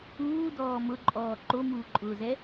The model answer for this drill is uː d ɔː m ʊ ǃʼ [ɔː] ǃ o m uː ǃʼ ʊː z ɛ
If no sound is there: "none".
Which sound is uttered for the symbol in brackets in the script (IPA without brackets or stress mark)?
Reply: ɔː